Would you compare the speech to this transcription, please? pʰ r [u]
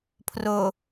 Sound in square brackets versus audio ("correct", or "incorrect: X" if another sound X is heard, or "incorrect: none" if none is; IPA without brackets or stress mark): incorrect: o